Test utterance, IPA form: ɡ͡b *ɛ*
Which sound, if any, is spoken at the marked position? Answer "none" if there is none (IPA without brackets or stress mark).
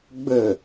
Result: ɘ